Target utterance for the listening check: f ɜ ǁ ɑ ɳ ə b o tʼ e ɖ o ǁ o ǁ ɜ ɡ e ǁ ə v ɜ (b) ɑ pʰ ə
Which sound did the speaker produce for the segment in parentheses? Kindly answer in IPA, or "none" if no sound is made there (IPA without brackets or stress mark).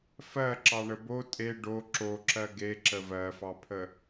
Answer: f